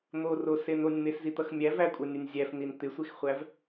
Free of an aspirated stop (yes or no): yes